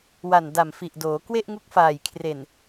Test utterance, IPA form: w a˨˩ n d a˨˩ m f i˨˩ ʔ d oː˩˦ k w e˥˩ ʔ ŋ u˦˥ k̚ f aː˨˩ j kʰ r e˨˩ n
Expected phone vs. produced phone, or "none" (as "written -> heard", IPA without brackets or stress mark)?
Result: none